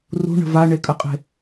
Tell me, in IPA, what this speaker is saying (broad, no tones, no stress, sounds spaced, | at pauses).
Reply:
r ṳ ɳ ə̤ v a ɳ e kʼ ə qʼ e̤